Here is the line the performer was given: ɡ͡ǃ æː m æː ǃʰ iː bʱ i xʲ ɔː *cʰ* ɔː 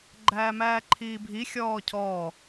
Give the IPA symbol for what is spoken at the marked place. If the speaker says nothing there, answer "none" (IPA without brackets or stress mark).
cʰ